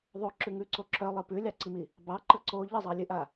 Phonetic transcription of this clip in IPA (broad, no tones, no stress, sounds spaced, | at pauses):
ðˤ o ǁ ʉ ŋ ʉ ǀ o ǁ œ lˠ ɨ p ʉ lʲ ɑ ǀ i m i | b ɑ ǃ ə ǀ o ʎ ə zˤ ɑ lʲ ɨ ʔ a